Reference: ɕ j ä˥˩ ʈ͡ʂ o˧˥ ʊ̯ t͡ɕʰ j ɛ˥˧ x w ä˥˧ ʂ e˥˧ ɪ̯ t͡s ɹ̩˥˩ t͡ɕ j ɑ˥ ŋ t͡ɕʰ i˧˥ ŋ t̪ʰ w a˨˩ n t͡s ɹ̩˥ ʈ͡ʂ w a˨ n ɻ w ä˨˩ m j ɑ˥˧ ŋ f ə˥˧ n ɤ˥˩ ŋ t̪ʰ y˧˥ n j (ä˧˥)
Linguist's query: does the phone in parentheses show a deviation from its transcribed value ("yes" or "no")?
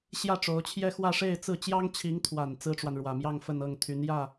yes